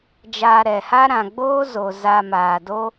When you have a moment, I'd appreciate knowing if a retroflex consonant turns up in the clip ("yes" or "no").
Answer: no